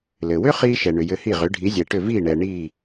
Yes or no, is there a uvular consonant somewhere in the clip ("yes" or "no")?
yes